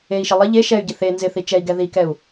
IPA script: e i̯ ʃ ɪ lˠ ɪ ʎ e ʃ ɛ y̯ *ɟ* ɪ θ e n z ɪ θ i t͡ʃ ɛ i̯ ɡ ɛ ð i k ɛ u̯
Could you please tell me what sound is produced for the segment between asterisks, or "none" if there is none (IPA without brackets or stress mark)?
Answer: ɟ